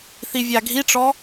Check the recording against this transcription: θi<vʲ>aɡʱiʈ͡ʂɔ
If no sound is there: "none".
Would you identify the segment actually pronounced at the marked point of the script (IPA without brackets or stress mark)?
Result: vʲ